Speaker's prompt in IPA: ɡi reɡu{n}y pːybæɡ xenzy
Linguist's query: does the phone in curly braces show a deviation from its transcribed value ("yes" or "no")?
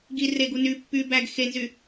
no